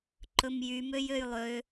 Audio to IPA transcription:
ǃɵmjymøj øjlˠø

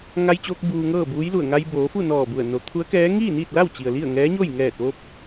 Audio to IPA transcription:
ŋa˧jt͡ɕoː˧k̚ buː˧ŋɤː˥˨ buː˧˥jlu˧˩ə̯ ŋa˧jboː˩˧fu˥˨ nɔː˧˩bu˧˩ə̯ no˩˧t̪ʰu˧˥ə̯kɛː˧˥ ŋiː˥˨niː˥˨t̚la˥˨w t͡ɕi˩ə̯li˥˨ə̯ ŋɛː˧˥ɲo˥˨j ŋɛː˧˩t̚ʋo˧p̚

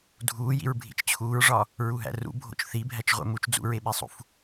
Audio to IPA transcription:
dʱuːjḭɹ bʱḭt͡ʃt͡ɕʰuːɹʐɒ | ɹuɦæ̰rṵ bʱo̰t͡ʃθibʱæt͡ʃ ʁʷḛmut͡ʃ d͡zṵɹeɓesˤṵf

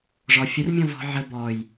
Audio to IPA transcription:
ʐɔ fʲərmʲɔ̃ vɔ̤ ʕə bɔj

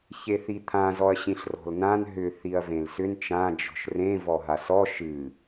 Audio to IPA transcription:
çeθit̪ʰã zɔɐ̯ɕĩɬrɔ̤lnãn ɦʏ θiɐ̯vẽlsʏn t͡ʃã d͡ʒɔ̤ʃrẽ vɔɦasɔ ʃɨ

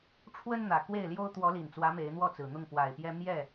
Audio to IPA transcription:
ʈ͡ʂʰwə˦n n̪ä˨˩ kwe˥˨ɪ̯ljo˦ʊ̯ t̪wɔ˨˦li˨˩nt͡swä˨˦ me˨˦ɪ̯n̪wɔ˥˨t͡sɹ̩˨˩n̪ʊ˥˨ŋ pwa˨˩ɪ̯pjɛ˦ mjɛ˥˨

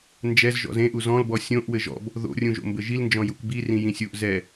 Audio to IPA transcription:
nd͡ʒɛz ʒɔ̰zẽʔu zɔ̃lbɔ sʲõʔ wɘʒɔ̰b | ðo̰rʲũʒo̰ mbɘʒilnd͡ʒɔ̃ jukbi rĩjĩsʲuʔ zɛ

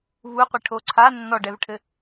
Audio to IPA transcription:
vuqʷiʈʰo ǀʰa nːɔɖɛvʈʰɘ

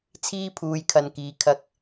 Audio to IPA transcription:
t͡sʰiː˥pʰuː˨j kʰɐ˨n kiː˨ kʰɐ˧k̚

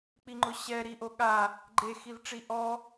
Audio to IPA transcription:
k͡piŋ͡ǃʊɕɛ ɾiʔoɠa | ɡ͡ǃe xivʈ͡ʂiʔɔ

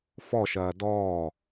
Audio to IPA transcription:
fɔʃɐː dɔː

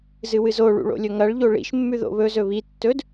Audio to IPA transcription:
zɨwɨzoɭṵ ɭo̰lʲɵŋɐɭʎo ɭḭʃmːʉ ðo̰βɵzɵ βi tːɵd

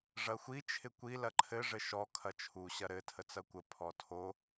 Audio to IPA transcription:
ʐɐxʷi t͡ʃʰɪkʷi lɐǃʰɘ ʐɘʃɔ kʰɐt͡ʃʰu ɕɐɾɘ tʰət͡sɐkʷə pʰɔtʰo

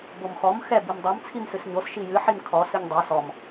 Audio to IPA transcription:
bomxɔm xɛ bimdˤom t͡sʰimsɨsɲos ʃijɨ ħimkʰɔ sɨɲdˤɛ sɔm

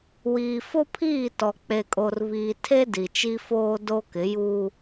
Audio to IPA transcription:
wiː˨fo˦pʰiː˦˨tɔ˨ k͡pe˨kʼo˨rβiː˨tʰe˦ di˨t͡ʃi˦foː˦ do˦kɪ˨˦juː˦

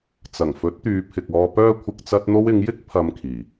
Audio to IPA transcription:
t͡sɐ˨˩ŋfɵ˨˥t̚t̪yː˨˧ pʰɪ˨k̚ɔː˧pœː˥kʷʰɪ˧k̚ t͡sɐ˧t̚n̪o˧w ɪ˨˧ŋjɪ˥k̚ pʰɐ˧mkʰiː˨˩

